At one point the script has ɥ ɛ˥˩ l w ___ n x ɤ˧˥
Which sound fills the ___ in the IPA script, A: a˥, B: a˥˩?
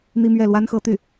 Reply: A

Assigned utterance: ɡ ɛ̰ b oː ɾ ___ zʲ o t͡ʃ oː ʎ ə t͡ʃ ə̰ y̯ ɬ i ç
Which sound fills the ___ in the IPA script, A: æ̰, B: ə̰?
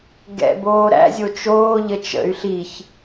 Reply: A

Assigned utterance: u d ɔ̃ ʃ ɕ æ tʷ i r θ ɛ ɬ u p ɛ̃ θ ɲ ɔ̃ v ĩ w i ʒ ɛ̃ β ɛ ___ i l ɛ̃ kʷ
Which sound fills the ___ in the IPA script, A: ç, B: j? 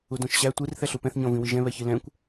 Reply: A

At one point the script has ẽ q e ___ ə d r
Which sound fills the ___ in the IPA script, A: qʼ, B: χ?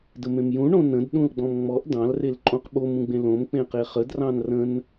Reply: B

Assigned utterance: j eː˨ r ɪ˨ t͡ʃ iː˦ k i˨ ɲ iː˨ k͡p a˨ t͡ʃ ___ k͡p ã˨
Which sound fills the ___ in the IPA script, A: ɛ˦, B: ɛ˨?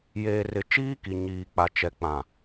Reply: B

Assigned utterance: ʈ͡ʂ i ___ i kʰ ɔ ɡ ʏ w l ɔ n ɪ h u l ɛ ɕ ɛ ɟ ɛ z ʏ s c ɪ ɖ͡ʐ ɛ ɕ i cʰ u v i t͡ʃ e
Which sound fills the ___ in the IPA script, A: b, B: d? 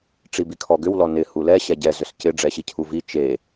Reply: A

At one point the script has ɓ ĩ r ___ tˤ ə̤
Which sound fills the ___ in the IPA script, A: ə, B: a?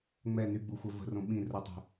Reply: A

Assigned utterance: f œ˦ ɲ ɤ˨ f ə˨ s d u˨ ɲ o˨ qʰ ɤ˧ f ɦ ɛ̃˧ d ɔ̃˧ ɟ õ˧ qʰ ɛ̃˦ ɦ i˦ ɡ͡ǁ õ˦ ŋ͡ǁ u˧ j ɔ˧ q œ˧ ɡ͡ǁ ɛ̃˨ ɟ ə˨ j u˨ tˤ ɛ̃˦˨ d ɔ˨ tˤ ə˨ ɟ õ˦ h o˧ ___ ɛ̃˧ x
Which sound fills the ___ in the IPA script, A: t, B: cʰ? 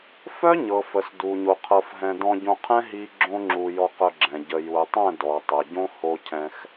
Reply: B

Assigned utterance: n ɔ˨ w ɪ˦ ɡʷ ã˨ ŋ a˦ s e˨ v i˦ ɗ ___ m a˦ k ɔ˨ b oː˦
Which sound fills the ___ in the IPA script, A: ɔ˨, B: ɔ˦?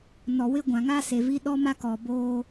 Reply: B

